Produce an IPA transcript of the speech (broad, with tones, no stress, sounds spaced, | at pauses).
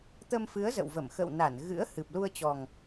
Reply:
t̪ ə˧ m f ɨ˨˦ ə̯ z ə̰˧˨ w v ə˧˩ m x ə̰˧˨ w n a˧˩ n ɣ ɨ̰˧˥ ə̯ h ɨ˨˩ p̚ l u˧ ə̯ t͡ɕ ɔ˨˩ ŋ